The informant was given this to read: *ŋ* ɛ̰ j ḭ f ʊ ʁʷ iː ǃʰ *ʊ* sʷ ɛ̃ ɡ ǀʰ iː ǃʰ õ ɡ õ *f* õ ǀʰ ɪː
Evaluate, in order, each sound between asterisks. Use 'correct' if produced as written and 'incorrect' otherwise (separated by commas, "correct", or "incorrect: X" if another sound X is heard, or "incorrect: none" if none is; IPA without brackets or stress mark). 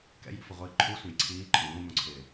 incorrect: k, incorrect: u, incorrect: m